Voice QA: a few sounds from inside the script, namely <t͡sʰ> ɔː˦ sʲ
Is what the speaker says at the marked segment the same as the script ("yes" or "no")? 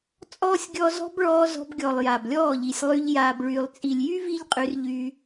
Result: no